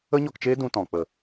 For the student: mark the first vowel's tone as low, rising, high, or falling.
high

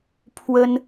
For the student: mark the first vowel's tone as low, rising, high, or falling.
high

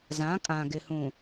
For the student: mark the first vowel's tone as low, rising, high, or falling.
rising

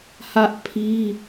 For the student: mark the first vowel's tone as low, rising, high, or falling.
high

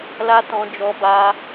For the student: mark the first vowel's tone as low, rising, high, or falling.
high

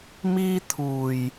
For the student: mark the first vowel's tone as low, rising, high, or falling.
high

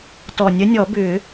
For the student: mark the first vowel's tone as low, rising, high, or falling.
low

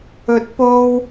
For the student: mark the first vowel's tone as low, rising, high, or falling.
rising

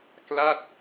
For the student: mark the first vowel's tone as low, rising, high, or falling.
falling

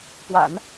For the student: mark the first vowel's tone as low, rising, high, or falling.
low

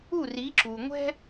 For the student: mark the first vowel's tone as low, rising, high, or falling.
falling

